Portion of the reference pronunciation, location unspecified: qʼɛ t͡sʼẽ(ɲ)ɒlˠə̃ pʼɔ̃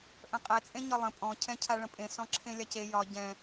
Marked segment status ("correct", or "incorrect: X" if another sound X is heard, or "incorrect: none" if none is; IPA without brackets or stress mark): correct